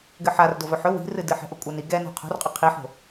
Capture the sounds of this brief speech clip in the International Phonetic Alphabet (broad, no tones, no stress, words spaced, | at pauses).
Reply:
ɡɘħar dovɵħɵ wi̤rɨdɨ ħɛ̤ʔokʷʼani ɡɛ no̤qʰo̤rqʼɵ qʰiħo̤